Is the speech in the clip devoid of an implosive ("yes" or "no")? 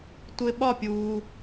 no